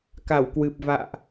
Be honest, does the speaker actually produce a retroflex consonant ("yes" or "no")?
no